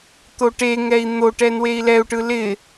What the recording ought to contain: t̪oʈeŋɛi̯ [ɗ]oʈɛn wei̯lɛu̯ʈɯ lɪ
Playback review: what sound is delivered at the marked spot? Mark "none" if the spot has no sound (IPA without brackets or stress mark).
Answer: n̪